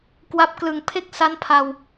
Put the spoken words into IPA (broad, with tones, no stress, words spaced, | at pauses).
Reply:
kwa˦˥p̚ klɯ˨˩ŋpʰe˥˩k̚ sa˦˥npʰa˧w